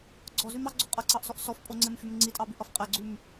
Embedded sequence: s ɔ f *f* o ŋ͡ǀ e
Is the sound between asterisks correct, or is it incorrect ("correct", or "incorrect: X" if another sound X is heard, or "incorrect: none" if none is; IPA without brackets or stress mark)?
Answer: incorrect: pʼ